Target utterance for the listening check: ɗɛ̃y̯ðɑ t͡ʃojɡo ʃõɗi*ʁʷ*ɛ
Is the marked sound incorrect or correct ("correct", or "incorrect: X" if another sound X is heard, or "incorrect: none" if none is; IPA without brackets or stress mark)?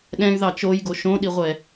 correct